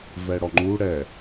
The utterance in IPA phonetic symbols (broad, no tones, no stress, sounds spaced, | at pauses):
v ɛ ɽ ɔ ŋ͡ǃ u ɽ ɛ